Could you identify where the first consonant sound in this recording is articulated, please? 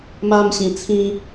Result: labial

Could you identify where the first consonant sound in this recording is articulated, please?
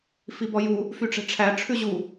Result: labial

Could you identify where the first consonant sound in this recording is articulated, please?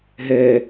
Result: glottal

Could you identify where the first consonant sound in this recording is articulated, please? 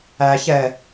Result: palatal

